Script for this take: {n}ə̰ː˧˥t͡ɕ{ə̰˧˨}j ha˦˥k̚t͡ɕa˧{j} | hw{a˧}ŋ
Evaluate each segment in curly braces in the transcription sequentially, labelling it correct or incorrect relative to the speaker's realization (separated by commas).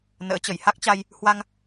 correct, incorrect, correct, correct